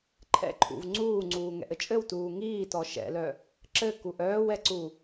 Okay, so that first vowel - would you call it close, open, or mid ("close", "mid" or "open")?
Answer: mid